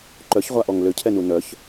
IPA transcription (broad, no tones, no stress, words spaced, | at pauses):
ǃœçʁʷaʔɔŋ løcʰɛnu nœç